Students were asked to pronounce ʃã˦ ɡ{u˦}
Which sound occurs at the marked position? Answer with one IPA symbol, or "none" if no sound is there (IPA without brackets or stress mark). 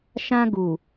u˨